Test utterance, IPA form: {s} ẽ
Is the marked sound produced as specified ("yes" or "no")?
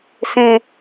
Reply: yes